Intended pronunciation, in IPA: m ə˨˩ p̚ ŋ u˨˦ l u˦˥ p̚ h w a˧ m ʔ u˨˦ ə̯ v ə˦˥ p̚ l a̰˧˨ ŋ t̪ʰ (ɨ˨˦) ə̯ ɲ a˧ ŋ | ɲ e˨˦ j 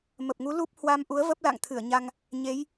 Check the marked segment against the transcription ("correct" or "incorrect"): incorrect